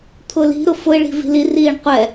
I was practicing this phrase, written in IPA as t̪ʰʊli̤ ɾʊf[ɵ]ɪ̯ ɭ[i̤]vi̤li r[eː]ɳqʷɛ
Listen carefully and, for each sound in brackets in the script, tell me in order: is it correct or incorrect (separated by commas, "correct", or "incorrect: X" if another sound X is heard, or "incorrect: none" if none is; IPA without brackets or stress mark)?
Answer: incorrect: ʊ, correct, incorrect: iː